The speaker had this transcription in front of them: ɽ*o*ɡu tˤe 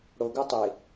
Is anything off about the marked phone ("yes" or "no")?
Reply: no